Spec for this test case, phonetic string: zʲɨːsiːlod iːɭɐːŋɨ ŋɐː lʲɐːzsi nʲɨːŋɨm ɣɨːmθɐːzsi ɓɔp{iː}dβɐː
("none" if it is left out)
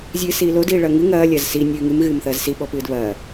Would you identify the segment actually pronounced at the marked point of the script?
ɨː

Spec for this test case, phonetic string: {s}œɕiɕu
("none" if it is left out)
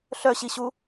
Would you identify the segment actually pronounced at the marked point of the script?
ɬ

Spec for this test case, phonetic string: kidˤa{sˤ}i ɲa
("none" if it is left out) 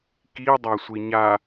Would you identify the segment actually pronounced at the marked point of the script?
sʷ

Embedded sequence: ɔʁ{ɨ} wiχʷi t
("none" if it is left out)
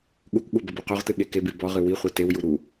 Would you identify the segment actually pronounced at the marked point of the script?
ɨ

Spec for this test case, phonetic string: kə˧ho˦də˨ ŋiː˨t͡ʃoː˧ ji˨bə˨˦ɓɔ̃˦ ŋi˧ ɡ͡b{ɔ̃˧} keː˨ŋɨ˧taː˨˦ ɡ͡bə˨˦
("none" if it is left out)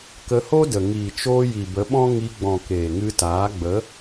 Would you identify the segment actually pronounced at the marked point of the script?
ɔ̃˨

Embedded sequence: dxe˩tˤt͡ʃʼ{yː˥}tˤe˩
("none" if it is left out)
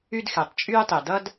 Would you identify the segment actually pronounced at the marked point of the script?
yː˥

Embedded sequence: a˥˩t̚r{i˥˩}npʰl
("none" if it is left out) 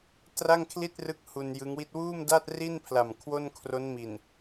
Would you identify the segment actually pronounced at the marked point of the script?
i˥˩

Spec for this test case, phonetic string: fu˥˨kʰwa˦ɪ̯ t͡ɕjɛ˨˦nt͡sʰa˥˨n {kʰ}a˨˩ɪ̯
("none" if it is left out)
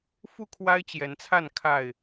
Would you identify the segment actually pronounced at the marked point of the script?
kʰ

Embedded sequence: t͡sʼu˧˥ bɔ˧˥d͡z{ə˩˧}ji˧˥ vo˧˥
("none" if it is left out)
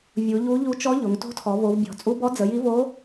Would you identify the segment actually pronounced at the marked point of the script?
ə˩˧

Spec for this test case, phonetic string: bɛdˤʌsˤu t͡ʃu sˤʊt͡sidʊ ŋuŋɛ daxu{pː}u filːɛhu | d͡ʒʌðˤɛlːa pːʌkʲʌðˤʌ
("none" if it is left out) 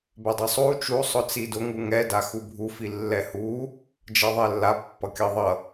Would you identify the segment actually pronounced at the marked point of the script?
bʱ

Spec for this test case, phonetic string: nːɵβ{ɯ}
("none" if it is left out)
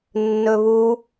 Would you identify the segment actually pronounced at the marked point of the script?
u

